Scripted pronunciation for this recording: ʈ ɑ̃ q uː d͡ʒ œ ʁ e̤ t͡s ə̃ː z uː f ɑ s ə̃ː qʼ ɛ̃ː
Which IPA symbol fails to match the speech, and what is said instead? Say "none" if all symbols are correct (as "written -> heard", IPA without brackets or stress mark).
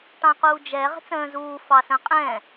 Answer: œ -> ɛ